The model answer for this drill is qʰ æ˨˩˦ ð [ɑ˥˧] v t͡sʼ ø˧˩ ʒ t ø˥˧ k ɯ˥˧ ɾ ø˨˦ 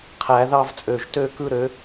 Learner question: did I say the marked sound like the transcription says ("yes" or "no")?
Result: yes